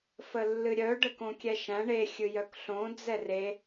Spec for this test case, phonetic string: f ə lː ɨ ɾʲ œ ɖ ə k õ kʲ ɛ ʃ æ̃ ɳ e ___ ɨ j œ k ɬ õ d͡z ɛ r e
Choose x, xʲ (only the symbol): xʲ